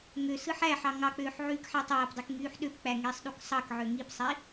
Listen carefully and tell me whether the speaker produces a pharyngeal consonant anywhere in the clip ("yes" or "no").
yes